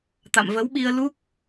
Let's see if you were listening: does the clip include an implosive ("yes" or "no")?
yes